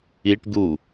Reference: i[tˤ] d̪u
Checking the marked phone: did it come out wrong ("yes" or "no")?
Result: yes